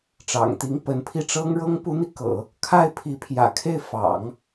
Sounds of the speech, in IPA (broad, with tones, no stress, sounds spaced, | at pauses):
ʈ͡ʂ ɑ̰˨˩ ŋ t̪ i˧˥ ŋ p ə˧˥ n pʰ i˥˩ ʈ͡ʂ ɤ˥ ŋ ɻ ɤ˥ ŋ p u˧˥ n̪ i˧ k ɤ̰˨˩˦ | kʰ a˥˩ ɪ̯ pʰ i˧˥ pʰ j ä̰˨˩ kʰ e˥˩ ɪ̯ f ɑ̰˨˩˦ ŋ